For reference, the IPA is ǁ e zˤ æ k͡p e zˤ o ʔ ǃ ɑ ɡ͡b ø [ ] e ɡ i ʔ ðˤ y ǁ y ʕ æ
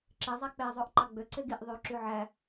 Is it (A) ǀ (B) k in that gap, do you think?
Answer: A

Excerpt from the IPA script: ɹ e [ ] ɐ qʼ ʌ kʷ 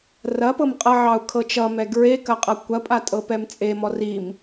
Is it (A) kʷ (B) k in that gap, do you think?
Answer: B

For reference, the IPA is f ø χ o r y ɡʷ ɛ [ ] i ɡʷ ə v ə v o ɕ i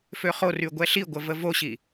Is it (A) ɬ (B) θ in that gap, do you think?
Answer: A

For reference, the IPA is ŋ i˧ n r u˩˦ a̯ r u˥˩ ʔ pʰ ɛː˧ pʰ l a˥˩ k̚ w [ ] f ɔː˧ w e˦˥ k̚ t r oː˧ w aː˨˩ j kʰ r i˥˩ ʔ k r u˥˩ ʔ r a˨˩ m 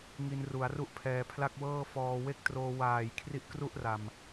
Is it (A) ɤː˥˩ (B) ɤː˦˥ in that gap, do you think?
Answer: A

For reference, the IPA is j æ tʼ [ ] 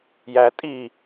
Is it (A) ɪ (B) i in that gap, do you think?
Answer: B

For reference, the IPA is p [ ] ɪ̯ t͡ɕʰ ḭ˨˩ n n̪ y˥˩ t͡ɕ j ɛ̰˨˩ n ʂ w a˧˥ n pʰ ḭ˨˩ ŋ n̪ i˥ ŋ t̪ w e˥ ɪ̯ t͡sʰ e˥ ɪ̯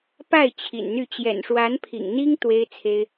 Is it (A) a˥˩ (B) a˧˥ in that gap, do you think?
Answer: A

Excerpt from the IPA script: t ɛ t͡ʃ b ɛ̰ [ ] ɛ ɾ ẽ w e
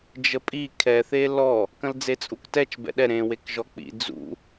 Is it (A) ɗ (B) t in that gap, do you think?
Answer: A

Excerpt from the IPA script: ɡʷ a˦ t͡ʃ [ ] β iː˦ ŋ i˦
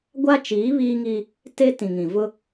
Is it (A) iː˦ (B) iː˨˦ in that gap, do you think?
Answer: B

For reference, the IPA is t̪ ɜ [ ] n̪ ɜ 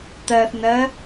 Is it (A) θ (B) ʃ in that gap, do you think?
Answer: A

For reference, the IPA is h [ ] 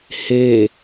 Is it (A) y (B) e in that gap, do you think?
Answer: B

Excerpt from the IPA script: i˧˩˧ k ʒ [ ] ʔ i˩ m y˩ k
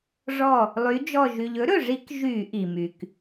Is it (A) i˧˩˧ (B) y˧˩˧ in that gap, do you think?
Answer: B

